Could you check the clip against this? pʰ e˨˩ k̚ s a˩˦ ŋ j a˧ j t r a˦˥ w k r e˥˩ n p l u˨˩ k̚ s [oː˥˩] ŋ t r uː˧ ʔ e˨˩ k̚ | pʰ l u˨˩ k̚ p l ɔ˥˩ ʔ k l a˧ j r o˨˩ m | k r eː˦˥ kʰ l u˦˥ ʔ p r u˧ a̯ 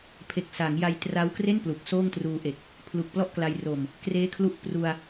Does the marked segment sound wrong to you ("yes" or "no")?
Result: no